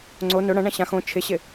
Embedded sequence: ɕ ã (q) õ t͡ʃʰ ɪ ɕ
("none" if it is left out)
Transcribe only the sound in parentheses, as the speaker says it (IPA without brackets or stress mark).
x